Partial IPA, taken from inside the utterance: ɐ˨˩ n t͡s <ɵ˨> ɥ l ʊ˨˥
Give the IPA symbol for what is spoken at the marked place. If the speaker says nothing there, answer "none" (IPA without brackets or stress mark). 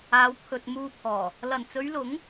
ɵ˨˧